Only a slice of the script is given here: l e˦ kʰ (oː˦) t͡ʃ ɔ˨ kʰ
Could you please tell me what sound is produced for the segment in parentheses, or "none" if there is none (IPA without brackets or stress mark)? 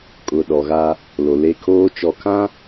oː˦